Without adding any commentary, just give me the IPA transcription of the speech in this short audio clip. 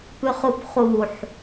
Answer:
pʉχupχuħ

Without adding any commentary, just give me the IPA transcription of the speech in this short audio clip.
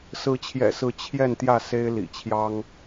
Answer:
sɹ̩˨˦t͡ɕʰjɛ̰˨˩sɹ̩˨˦ t͡ɕʰjɛ˥˨n t̪jä˥˨se˦ɪ̯ lḭ˨˩t͡ɕʰjɑ˦ŋ

